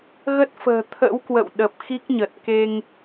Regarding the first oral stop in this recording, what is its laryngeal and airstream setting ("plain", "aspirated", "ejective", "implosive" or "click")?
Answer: plain